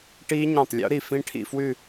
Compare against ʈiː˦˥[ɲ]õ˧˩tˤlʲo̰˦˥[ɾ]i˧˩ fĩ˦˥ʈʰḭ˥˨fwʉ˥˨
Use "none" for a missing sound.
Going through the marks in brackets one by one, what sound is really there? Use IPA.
ɲ, ɾ

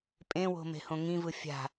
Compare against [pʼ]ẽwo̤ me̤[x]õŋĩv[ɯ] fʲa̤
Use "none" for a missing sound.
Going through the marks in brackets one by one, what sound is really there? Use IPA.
pʼ, h, ɯ

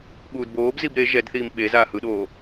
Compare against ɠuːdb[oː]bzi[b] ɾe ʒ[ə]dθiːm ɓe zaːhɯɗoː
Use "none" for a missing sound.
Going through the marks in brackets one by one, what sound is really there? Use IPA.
oː, b, ɛ

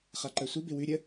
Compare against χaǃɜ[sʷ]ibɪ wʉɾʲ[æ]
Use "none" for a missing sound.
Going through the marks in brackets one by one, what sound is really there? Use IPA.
sʷ, ə

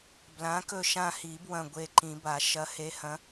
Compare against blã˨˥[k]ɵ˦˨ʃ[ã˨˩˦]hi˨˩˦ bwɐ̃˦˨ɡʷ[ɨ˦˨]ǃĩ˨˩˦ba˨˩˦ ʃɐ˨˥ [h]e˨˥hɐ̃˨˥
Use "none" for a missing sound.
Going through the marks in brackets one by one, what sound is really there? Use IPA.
k, ã˦˨, e˦˨, h

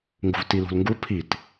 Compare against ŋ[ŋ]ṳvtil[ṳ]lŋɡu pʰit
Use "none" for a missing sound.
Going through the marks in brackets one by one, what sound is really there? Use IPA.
ɡ, ṳ

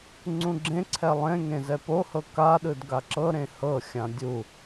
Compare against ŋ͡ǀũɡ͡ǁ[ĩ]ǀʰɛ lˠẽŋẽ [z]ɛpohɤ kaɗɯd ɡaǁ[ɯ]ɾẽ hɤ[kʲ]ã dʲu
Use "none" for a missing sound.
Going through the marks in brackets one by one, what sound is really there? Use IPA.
ẽ, z, ɤ, xʲ

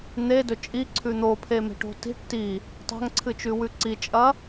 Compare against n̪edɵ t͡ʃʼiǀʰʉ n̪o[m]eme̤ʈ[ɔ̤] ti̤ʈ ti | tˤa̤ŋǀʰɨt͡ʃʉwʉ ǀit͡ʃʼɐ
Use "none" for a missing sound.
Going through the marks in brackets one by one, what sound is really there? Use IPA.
pʰ, o̤

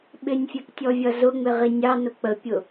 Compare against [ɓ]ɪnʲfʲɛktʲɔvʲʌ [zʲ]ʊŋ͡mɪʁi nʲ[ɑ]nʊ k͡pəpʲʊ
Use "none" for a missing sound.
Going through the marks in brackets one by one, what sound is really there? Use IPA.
ɓ, z, ɑ

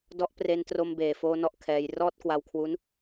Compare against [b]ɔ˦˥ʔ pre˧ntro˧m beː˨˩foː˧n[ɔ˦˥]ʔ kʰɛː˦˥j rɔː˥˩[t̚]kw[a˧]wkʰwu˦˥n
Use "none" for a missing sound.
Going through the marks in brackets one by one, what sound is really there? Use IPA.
d, ɔ˦˥, t̚, a˧

